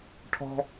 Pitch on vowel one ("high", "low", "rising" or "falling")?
high